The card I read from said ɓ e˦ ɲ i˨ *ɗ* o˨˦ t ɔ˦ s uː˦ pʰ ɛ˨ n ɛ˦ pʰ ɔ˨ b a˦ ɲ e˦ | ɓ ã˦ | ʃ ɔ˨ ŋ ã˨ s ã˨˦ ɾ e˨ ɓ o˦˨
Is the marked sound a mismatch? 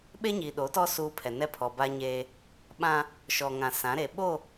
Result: no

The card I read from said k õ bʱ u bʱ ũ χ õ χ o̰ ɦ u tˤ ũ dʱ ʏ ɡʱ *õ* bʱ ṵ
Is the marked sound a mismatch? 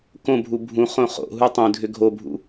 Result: yes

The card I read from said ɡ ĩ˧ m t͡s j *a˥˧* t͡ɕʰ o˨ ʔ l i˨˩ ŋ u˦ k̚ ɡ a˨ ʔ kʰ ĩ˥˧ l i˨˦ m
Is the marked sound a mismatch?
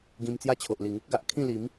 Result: yes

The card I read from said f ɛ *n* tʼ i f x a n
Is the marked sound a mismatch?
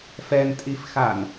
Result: no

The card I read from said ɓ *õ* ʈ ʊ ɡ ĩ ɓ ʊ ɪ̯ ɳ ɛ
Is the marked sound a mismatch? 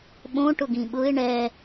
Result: no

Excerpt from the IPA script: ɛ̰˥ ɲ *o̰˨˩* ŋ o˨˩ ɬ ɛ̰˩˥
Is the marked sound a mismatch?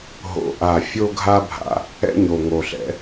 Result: yes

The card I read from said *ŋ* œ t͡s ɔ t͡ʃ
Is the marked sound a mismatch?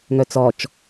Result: no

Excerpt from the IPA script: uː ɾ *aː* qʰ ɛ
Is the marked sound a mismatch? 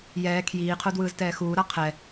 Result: yes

